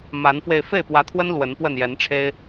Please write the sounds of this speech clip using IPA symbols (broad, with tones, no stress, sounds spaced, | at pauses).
m a˨˦ n f w e˧ ɪ̯ f e˥˨ ɪ̯ p w ä˨˦ t̪ʰ w ə˦ n l w ə˨˦ n p w ə˥˨ n j ɛ˨˦ n ʈ͡ʂʰ e˦ ɪ̯